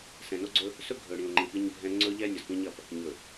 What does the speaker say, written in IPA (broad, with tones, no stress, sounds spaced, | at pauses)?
s ɛ̃˨ n o˦ ɡ͡ǀ ɵ˦ | s ɵ˦ ɡʱ ɵ˨ ɽ ĩ˨ o̯ ŋ͡ǃ ĩ˨ p i˦ ɲ bʱ ɛ̃˦ ŋ͡ǀ ɵ˦ ʎ ɛ˦ nʲ ɒ˨ z p ĩ˦ ɲ ɐ˨ p | ɲ ɵ˨